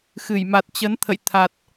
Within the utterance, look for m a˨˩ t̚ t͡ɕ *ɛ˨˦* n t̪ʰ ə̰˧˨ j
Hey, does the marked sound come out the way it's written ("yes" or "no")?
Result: no